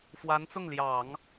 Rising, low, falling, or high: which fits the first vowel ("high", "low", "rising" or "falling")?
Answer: rising